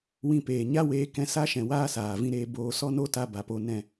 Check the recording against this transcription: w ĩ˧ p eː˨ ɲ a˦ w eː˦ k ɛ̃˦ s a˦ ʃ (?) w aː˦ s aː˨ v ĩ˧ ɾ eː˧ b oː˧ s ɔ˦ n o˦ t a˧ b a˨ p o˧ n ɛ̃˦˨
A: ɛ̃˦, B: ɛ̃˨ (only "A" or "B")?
B